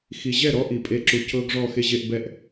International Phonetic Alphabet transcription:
xi˨ʑɛ˦˨ɾɔ˦ ʔi˨pʼe˦ ǁu˨ cɤ˦ɡ ʐɔ˦˨xe˦ʑe˦ʔbɛ˦ʔ

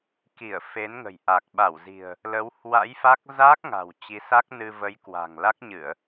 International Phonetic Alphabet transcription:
ki˧˩ə̯ fe˨˦n ŋə̤˨˩jʔa˨˩k̚ ɓa˧˩wzi̤˨˩ə̯ | lə˨˦w hwa̰˧˥jfa˦˥k̚ zaː˦˥k̚ŋa̤˨˩w t͡ɕi˨˦sa˦˥k̚nɨ˧ və˨˦jkwa̤˨˩ŋ la˦˥k̚ɲɨ˧˩˨ə̯

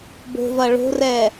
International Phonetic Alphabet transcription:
bo̤vɐ ɭo̤rɛ

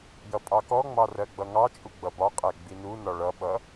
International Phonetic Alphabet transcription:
jʌpʼɑkɔŋ͡mɑ rɜɡ͡bʌŋɑt͡ʃʼu ɡ͡bʌbɒqʼæ ɡ͡binunɒ ɭʌɓʌ

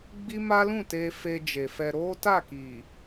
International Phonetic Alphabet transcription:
ɡ͡bi˦ma˦lũ˦˨te˧ fe˧d͡ʒe˨fɛ˧ ɾo˦ta˦˨ki˨

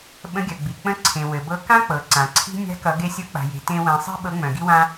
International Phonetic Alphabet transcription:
ɓə̃˧˥ɡʲœ˩ɡ͡bi˩ k͡pə̃˧˥ǀʰẽ˩ wɘ˩bɤ˧˥ kã˥k͡pɤ˩ ǀã˩ǀʰi̤˥ nʲa̤˧˥kʌ˩˧ ɡe˧˥sʲɤ˧˥k͡pa̤˩je̤˩˧ tẽ˧ wẽ˩˧sˤi̤˥ ɓɤ˧˥ŋ͡mœ̃˩ɡi˥wã˥

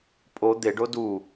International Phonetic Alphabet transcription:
pʼo d̪eɖo du

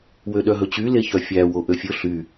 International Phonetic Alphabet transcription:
wøɗœɦɵt͡ɕy leçœfʲæ woʔøfʲɵ ɬy

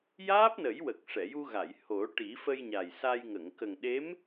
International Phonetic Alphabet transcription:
jaː˦˥p̚nə˨˩˦jwə˨˩k̚ ʂɛ˨˩˨ju˧ɣa˨˩˨j ho˨˩˦ʈi˨˩˦ fə˧jɲa˨˩jsa˧jŋə˨˩˨ŋ kə˨˩ŋɗe˧˥m

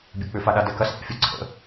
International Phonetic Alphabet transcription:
bʲɐk͡pʏfaɗa dɛkɐs ʔɛ̰fʲə ǀʰə̰

